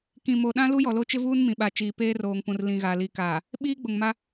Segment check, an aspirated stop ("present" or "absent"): absent